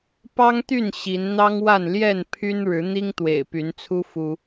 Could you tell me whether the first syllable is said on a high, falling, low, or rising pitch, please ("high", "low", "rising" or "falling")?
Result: high